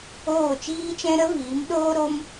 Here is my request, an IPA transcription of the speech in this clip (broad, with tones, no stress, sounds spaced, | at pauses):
oː˦˨ t͡ʃ iː˦ t͡ʃ ɛ̃˦ ɾ ə˦ v iː˨˦ m ɗ oː˦ ɾ o˦ m